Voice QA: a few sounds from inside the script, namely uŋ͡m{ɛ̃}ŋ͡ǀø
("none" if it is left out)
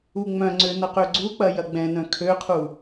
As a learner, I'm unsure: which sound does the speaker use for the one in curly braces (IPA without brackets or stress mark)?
œ̃